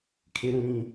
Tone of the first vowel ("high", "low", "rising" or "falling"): low